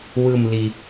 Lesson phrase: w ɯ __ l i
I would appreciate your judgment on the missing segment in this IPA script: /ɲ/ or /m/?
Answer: m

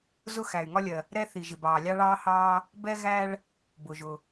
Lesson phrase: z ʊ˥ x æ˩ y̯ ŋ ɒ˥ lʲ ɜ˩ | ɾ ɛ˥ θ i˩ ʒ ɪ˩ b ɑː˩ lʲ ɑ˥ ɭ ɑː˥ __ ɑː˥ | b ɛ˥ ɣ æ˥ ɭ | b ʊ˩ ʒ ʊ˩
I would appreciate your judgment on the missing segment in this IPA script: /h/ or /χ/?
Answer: h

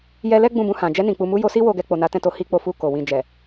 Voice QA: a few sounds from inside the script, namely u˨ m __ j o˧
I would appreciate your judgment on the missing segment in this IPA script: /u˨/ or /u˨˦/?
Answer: u˨˦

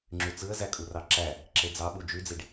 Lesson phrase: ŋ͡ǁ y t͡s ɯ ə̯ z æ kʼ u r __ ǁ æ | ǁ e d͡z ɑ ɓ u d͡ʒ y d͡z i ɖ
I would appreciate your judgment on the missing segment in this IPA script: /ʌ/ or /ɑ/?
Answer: ɑ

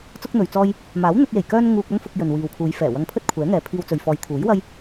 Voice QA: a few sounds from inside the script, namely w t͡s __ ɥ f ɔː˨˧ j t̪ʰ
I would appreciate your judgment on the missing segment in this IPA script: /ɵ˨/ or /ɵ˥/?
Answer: ɵ˨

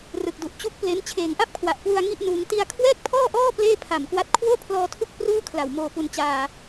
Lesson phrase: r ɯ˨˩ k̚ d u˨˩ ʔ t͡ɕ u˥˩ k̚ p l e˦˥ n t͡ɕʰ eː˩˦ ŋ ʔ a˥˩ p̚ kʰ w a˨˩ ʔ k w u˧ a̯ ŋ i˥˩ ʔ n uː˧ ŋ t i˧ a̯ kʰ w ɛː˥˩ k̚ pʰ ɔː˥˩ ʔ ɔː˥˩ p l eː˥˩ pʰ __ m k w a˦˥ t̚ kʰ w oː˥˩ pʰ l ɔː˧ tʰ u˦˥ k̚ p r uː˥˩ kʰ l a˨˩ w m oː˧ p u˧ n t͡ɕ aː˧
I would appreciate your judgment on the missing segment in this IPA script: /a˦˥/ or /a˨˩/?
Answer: a˨˩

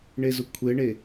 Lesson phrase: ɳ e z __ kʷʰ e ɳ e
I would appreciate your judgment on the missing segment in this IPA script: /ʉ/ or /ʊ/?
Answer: ʊ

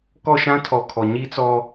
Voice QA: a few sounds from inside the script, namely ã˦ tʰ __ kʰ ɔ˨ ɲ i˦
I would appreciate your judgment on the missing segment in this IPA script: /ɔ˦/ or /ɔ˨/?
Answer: ɔ˨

